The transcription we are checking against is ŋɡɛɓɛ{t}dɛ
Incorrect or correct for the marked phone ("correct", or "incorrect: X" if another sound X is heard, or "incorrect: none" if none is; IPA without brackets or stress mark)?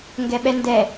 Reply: incorrect: n